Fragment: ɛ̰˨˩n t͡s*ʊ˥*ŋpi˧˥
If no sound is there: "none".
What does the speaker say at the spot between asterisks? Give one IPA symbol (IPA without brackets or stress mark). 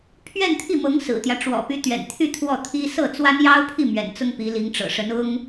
ʊ˥